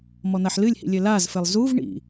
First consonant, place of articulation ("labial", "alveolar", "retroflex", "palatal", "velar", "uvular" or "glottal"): labial